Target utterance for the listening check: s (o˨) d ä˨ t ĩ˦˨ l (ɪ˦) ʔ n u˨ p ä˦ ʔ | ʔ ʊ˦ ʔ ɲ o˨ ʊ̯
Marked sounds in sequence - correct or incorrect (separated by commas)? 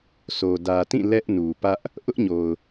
correct, incorrect